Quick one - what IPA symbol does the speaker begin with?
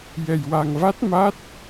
j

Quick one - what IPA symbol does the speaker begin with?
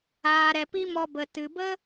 aː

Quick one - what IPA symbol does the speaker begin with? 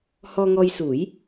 h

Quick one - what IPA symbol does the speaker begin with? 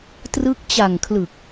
t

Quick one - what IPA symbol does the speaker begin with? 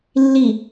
lː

